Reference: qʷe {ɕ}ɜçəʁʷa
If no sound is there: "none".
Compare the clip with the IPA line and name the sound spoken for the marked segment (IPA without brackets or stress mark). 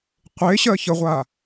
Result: ɕ